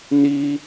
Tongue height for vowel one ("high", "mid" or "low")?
high